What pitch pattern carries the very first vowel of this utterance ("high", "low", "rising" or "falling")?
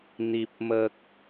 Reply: low